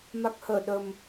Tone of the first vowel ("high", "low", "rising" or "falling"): low